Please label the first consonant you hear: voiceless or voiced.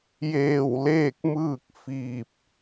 voiced